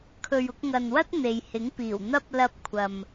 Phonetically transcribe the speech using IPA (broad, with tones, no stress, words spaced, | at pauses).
kʰɵ˨ɥʊ˧k̚ŋɐ˨nwɐ˥t̚ n̪e˨jhɪ˨˥ŋpiː˨˩w n̪ɐ˥p̚ lɐ˧p̚kʷʰɐ˨m